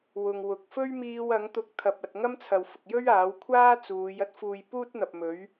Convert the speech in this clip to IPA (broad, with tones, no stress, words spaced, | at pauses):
wʊ˨ŋ wʊ˨k̚ fɵ˥ɥmiː˧w ɐ˨˥ŋt̪ʊ˧k̚t̪ʰɐ˨p̚ɐ˨t̚ ŋɐ˥mt͡sʰɐ˨wfʊ˨k̚jɵ˥ɥ aː˨˥wkʷʰaː˥t͡suː˨˧j ɐ˥t̚fuː˧j puː˥t̚n̪ɐ˨p̚ mɵ˨˥ɥ